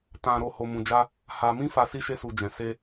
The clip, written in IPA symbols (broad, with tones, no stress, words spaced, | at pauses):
tã˨ɾo˨ ho˧mũ˧d͡ʒa˦ | ha˧mĩ˦fa˧ si˦ʃe˦su˧ d͡ʒɛ̃˨ se˧